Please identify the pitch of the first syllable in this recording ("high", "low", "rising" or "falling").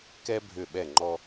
high